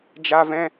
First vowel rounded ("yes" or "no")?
no